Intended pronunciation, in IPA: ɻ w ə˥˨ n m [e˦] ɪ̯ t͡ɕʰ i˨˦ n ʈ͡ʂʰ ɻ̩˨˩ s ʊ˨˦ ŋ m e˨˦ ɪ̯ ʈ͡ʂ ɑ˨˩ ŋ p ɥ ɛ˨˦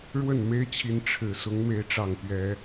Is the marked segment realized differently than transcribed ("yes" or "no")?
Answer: no